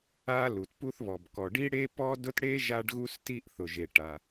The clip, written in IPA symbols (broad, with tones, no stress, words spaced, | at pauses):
a˥lu˩tpu˥θβɔ˩b kɔ˩ɖi˥ɽe˥ pɔ˥dʊ˥t ɽe˥ ʒa˥ɖɣu˥sti˥ʔ θʊ˩ʒe˩ʈa˩